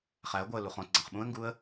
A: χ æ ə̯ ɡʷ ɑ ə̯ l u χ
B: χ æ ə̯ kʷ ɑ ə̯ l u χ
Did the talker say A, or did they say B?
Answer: A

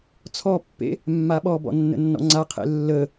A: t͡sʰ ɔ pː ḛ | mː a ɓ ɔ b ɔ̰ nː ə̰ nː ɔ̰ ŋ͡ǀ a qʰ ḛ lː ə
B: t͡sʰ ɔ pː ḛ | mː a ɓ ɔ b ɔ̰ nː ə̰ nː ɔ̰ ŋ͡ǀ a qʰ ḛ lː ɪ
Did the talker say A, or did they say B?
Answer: A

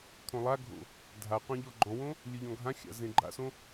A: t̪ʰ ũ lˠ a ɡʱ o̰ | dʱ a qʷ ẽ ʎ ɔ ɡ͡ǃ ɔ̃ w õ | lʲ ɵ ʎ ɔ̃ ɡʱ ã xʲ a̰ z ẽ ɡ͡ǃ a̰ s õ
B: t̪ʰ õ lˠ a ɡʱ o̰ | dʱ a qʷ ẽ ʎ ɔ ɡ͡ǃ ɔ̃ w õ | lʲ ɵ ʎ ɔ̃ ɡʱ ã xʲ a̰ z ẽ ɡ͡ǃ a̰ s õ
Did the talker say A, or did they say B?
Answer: B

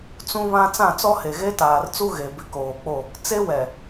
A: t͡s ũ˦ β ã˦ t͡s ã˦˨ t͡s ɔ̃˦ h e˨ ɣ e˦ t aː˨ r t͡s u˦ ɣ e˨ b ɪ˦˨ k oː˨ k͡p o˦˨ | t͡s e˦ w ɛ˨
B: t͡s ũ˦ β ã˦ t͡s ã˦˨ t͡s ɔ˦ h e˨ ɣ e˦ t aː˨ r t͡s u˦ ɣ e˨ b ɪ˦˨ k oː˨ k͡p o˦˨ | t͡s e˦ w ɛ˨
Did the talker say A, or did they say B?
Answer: B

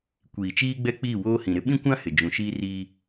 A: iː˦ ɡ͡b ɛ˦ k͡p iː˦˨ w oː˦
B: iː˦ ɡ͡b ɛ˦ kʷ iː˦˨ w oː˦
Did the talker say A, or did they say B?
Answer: A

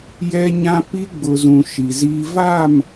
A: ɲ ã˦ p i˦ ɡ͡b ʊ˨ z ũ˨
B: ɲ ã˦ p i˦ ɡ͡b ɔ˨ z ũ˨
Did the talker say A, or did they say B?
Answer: A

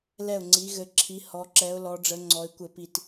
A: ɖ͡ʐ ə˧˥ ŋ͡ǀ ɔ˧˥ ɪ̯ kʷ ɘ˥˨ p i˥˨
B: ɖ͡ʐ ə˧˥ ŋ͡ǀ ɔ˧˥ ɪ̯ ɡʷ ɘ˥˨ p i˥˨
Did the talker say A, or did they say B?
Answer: A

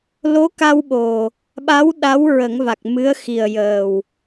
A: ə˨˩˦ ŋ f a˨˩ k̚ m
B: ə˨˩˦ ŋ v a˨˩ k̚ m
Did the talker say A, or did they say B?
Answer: B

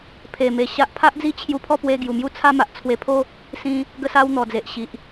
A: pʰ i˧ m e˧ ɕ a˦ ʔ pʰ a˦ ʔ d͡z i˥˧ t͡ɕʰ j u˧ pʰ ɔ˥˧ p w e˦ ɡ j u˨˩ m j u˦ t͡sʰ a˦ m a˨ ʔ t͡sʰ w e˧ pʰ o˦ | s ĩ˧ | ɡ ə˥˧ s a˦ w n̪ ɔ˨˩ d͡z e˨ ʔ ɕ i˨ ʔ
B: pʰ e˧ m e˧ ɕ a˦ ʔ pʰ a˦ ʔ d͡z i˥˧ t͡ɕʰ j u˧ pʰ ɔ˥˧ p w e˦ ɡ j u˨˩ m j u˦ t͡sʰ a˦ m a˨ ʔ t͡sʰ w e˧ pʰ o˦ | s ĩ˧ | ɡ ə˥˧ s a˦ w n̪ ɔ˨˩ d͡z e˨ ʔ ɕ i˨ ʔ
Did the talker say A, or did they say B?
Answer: B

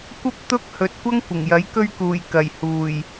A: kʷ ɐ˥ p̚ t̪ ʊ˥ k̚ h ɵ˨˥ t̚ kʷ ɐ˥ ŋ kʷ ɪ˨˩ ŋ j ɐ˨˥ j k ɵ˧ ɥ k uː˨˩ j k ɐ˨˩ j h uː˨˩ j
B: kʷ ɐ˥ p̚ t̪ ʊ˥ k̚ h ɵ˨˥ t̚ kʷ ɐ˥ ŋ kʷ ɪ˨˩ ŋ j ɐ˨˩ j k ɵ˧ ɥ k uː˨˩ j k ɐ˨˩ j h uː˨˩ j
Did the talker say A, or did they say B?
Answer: A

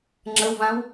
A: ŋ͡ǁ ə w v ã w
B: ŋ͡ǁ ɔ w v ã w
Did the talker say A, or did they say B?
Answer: A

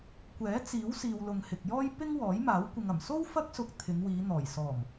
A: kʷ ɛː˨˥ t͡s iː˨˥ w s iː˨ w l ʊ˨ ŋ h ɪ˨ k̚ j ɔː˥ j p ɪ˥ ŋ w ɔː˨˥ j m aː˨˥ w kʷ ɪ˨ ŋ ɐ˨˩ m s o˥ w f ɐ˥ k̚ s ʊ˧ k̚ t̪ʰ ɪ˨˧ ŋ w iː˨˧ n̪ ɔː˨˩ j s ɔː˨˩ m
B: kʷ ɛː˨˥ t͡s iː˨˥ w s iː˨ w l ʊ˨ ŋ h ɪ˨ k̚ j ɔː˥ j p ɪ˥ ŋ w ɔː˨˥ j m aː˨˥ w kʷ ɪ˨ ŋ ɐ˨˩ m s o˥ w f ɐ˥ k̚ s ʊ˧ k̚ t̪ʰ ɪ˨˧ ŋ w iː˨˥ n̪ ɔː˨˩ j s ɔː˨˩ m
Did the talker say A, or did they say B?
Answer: A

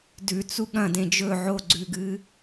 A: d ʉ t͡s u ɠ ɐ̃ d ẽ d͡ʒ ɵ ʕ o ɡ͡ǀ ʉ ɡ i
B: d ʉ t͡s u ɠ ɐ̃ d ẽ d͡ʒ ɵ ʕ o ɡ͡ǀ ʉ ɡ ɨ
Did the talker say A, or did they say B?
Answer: B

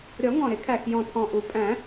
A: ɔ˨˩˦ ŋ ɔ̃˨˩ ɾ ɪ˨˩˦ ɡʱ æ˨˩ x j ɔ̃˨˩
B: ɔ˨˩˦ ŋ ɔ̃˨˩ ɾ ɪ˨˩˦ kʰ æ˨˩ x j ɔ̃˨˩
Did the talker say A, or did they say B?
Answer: B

